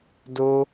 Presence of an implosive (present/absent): absent